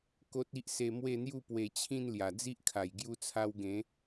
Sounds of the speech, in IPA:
ko˦t̚i˦ʔse˧ mwe˥˧n̪ju˥˧ pwe˧t͡ɕʰĩ˥˧n lja˨˩d͡zi˦ʔkʰa˨˩j ɡju˧t͡sʰa˧w ɡẽ˨˦

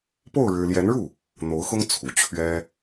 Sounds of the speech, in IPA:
po˥˩ʊ̯ ɻɻ̩˥ ljɛ˧˥nɻu˥˩ | n̪o˧˥ʊ̯xʊ˥ŋ t͡sʰu˨˩ t͡ɕʰɥɛ˥

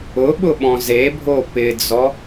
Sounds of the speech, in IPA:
ʊɓʊ ɓɔ̃zebʱo pɪd͡zɔ

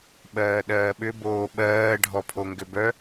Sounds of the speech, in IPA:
ɓɜːɗɜːɓʏ boːɓɜː ɖʱɔpʰoŋɡʏbœ

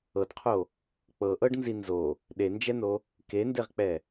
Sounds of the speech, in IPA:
ɤdqʰo | k͡pɤʔɤɖnzi nzo | ɗend͡ʒɛno | kendeʁk͡pɛ

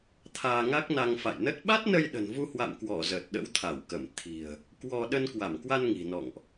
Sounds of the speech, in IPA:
t̪ʰaː˧ŋa˦˥k̚na˧ŋ fa̰˧˨jnə˦˥t̚ ɓa˦˥t̚nə˧jɗə̤˨˩n vu˧hwa̰˧˨mkwɔ˧˩ zəː˨˩t̚ɗə̰˧˥w t̪ʰa˧˩wkə˧˩m t̪ʰi̤˨˩ə̯ | kwɔ˧ ɗə˧nkwa˧˩mkwa˧n ŋi̤˨˩nɔ̰˧˨ŋʔ

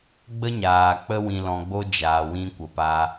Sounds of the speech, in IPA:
ɡ͡bə˦ɲaː˨ k͡pə˦ wĩ˨lɔ̃˨ɡ͡bo˧ d͡ʒaː˨wĩ˧ kʷə˨pa˧

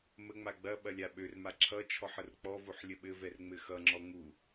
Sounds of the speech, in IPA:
məŋ͡ma ɡ͡bɐ ɓɐlʲaɓørma ǁʰʌt͡ʃʰɔħ ərk͡pɔvoħ lʲəɓɘvɛr ŋ͡mɘxʌŋ͡ǁɔ ŋu

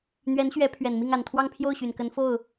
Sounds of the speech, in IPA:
n̪ɥɛ˧˥nɕɥɛ˧˥ pʰɥɛ˨˩nmi˥˩ŋa˨˩nt̪ʰwɑ˥˧ŋ pʰjo˥˩ʊ̯ɕy˨˩nkə˧˥n fo˥˩ʊ̯

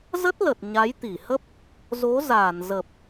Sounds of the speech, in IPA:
zə˦˥t̚lə˨˩t̚ ɲa˨˦jt̪i˧˩hə˦˥p̚ | zo˨˦ zaː˧˩nzə˨˩p̚

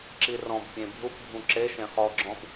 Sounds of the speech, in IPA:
ǁirɔ̃bpʲẽ bʱupbʱũ ǁe ʃẽχɔɡ͡ǁɔ̃b

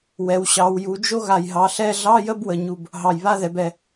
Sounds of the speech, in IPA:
wɛ˩˧w ɕɑ˩˧wju˩˧d͡ʒo˥ ɣa˨˩jɦɑ˩˧ɬɛ˧˥˧ ɮɑ˧˥˧jə˧˥˧bwə˨˩ɲu˨˩b | ɦɑ˨˩j βa˧˥˧ðɛ˩˧bɛ˨˩

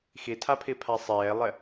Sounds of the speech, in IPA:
xitʰapʰipʰa sˤeːlˠe

